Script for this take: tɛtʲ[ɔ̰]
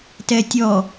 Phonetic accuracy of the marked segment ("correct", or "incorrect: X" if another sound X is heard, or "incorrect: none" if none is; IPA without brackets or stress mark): incorrect: ɔ